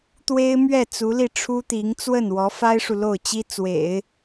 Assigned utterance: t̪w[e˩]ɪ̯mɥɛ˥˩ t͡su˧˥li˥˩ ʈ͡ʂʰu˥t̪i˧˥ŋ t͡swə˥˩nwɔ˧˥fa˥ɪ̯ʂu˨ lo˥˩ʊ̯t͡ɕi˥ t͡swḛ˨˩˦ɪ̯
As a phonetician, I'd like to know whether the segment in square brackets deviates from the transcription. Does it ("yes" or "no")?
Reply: yes